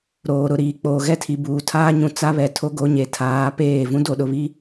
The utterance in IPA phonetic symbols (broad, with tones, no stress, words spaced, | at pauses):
ɾoː˨ɾʊ˨ɾiː˨ k͡poː˨ɣɛ˦tʰi˨buː˨ tʰaː˦ɲũ˨ t͡sa˦βɛ˨ tʰo˦ɡo˦ɲe˨ tʰaː˨˦peː˦˨ vũ˦do˨ɗʊ˨βi˦